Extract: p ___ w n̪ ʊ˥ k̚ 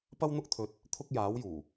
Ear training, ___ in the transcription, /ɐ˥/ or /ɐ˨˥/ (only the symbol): ɐ˥